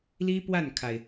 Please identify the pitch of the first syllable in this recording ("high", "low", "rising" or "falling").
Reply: high